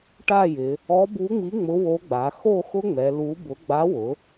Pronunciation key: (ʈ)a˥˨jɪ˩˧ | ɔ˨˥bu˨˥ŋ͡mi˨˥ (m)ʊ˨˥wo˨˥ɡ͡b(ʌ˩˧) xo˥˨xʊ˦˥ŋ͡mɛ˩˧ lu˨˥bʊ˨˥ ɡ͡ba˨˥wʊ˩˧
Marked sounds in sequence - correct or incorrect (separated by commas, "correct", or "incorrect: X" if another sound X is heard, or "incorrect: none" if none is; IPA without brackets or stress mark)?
correct, incorrect: ŋ͡m, incorrect: a˩˧